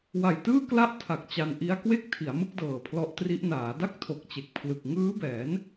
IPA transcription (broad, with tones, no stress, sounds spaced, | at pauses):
w a˨˩ j t ɯː˥˩ k l a˥˩ ʔ tʰ a˨˩ k̚ t͡ɕ a˧ n ʔ i˦˥ a̯ k w e˥˩ k̚ tʰ i˩˦ a̯ m ɯ˥˩ k̚ d ɤː˨˩ pʰ l ɔ˦˥ ʔ t r i˦˥ ʔ n aː˩˦ d a˥˩ k̚ tʰ o˨˩ k̚ t͡ɕ e˨˩ k̚ pʰ l ɯ˨˩ k̚ ŋ ɯː˦˥ b ɛː˩˦ n